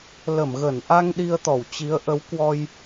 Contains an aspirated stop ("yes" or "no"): no